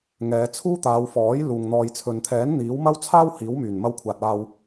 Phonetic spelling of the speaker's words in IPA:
ŋ ɛː˨˧ t͡sʰ uː˥ t̪ aː˨˧ w f ɔː˨˥ j l uː˨ ŋ n̪ ɔː˨ j t͡sʰ ɵ˨ n t̪ʰ ɛː˨˥ n n̪ iː˨˥ w m ɐ˥ w t͡sʰ aː˥ w h iː˨˥ w m yː˨˩ n m ɐ˧ w kʷʰ aː˨ t̚ aː˨ w

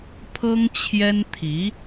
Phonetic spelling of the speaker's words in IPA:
pʰ ɤ˥ ŋ t͡ɕʰ j ɛ˥ n t̪ʰ i˧˥

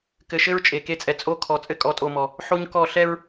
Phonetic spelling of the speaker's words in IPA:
k ɘ˨ ʃ ɘ˦ ɹ t͡ʃʼ e˨ k e˦˨ t͡sʼ ɛ˨ t͡sʼ o˦ kʰ ɔ˨ t͡sʼ ɘ˦ kʼ ɔ˨˦ tʼ o˨ m ɔ˨ | ħ o˦ ɲ k ɔ˦˨ ɬ ɛ˦ ɹ

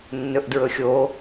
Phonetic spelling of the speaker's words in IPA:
nː ɵ ʔ d ɹ ɵ xʲ o

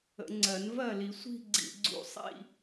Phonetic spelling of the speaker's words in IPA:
ə̰˨˩˦ ŋ͡ǀ ɜ˨˩˦ n v ɜ˥˩ l i˨˩˦ sʷ i̤˥˧ ɡ͡ǀ ḭ˧ ɡ͡ǀ ṵ˧ sˤ ḭ˥˧

